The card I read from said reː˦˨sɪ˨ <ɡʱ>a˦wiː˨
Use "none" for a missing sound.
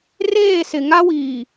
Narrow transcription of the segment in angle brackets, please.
ŋ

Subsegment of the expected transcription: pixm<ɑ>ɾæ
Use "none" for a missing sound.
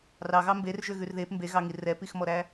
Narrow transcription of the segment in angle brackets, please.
ɔ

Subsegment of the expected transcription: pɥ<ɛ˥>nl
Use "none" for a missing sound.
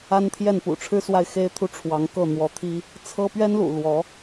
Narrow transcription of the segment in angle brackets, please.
ɛ˥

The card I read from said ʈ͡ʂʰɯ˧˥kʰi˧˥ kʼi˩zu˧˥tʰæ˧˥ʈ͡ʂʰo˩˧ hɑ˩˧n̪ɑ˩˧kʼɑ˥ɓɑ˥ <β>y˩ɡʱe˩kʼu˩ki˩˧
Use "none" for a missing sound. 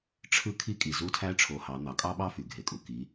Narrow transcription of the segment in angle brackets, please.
f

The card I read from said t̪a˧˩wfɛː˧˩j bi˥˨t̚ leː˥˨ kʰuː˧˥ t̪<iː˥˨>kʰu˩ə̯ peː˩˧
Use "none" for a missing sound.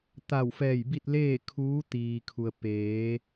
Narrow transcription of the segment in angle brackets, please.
iː˩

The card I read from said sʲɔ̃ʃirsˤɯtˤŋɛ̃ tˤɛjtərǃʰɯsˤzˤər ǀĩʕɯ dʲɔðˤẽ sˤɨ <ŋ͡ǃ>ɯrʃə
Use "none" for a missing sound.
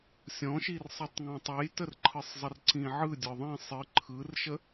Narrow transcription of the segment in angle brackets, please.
ǃʰ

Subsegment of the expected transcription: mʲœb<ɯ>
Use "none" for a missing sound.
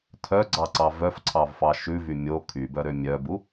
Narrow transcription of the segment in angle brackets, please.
u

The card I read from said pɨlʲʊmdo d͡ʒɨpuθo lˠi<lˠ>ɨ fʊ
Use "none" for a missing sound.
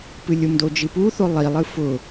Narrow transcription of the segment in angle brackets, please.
lˠ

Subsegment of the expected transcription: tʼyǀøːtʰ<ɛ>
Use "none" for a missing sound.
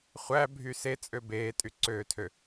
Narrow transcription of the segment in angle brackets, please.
ø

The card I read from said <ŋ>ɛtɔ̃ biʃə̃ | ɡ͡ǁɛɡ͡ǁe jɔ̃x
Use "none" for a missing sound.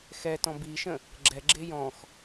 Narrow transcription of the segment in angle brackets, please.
x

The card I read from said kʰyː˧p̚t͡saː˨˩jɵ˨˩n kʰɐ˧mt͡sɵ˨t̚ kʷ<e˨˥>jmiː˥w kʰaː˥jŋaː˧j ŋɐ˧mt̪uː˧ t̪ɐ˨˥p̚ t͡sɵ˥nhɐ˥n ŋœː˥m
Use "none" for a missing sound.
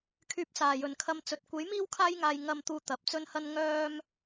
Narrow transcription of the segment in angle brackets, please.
e˨˥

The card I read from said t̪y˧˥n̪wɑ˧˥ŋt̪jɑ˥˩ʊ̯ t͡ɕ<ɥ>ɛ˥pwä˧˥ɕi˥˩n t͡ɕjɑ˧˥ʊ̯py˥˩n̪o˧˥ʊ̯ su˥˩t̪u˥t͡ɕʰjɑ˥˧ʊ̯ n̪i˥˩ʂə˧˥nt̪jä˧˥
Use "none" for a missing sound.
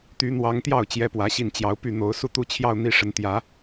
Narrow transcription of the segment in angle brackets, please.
j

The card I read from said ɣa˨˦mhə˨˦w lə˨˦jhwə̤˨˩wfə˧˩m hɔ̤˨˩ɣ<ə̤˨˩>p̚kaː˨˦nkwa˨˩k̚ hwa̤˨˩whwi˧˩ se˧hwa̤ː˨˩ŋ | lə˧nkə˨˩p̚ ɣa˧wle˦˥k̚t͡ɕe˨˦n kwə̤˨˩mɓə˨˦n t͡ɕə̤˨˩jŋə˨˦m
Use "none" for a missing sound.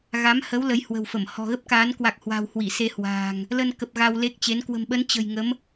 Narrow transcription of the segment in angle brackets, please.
ə˦˥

